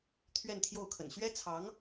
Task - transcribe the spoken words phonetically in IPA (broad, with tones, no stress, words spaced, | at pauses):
t̪ʰɥɛ˥˧nt̪ʰjo˥˩ʊ̯ kʰə̰˨˩n ɕɥɛ˥t͡sʰɑ˧˥ŋ